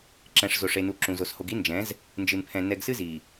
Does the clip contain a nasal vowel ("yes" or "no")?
yes